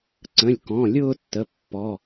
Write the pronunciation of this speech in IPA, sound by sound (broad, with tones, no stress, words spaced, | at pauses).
ǀə̃˩˧˩lʲkɔ̃˩˧˩lʲʊː˥˧tːə˩˧˩ pːɔ˩˧˩